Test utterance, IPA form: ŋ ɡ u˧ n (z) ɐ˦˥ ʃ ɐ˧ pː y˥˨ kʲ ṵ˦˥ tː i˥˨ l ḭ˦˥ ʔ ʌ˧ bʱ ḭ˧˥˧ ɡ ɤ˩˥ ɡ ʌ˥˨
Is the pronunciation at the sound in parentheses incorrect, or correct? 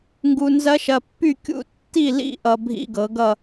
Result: correct